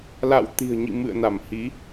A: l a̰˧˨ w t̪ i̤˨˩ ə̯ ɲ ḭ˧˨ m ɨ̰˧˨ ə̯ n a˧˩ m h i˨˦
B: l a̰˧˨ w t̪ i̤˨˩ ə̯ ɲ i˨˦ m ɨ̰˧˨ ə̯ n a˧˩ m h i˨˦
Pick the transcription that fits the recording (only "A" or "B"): A